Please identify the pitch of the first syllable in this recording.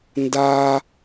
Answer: high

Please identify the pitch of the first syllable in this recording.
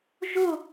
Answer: falling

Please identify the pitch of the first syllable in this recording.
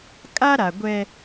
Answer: high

